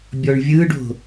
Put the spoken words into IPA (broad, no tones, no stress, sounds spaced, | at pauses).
bʲ ɔ ɳ vʲ ɯ ɖ o̤